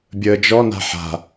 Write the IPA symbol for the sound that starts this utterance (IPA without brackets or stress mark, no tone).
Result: bʲ